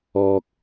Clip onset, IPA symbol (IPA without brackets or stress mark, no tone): ɔː